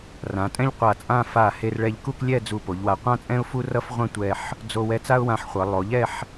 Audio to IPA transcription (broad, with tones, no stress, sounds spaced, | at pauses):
r ã˩˧ tʼ ɛ̃˥ ʎ qʷ a˧˩ t͡sʼ ã˥˧ f a˧˩ h e˧ r ɭ ɛ˧ ʎ k u˥˧ k lʲ ɛ˥˧ d͡z u˧˩ p o˩˧ ʎ w a˧˩ qʷ ã˥ t͡sʼ ɛ̃˥ ʊ̯ f u˥ r ʌ˥ f ʁʷ ã˥ tʷ ɛ˧ ħ | d͡z o˧ w ɛ˧ t͡s a˥ ʊ̯ w ã˧ ħ χʷ ʌ˩˧ lˠ o˩˧ ʎ ɛ˥˧ ħ